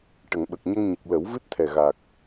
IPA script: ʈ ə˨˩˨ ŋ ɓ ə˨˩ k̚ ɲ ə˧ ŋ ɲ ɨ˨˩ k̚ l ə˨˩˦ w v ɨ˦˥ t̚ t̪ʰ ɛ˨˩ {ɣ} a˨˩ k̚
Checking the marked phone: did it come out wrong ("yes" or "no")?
no